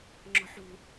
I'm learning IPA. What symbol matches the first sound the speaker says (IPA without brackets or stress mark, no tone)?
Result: ŋ͡ǁ